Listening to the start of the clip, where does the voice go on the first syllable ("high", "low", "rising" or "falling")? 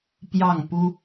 falling